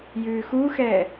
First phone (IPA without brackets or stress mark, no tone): j